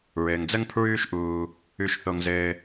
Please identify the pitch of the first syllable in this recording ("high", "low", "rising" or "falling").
low